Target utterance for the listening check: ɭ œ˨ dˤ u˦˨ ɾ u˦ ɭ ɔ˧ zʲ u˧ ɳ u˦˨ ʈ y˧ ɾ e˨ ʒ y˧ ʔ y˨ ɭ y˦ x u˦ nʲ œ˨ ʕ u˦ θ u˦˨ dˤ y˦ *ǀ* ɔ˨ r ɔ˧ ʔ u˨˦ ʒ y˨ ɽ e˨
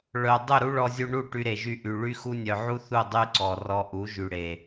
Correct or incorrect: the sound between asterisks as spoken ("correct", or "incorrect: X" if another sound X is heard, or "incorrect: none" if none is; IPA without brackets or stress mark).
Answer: correct